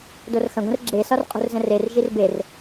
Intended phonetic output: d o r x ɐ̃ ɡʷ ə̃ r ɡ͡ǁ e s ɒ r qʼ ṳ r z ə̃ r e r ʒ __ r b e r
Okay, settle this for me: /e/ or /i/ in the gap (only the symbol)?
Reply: i